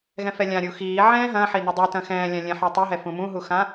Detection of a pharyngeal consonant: present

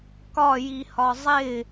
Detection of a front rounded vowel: absent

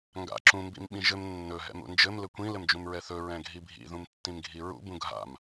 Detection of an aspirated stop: absent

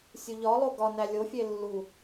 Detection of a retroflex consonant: absent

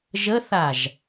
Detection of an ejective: absent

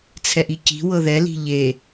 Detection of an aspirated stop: present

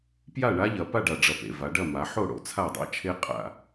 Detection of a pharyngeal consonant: present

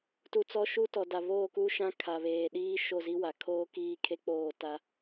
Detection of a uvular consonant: absent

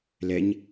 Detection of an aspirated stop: absent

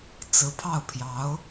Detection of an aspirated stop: present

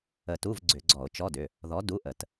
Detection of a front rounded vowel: present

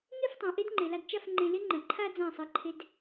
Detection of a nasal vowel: present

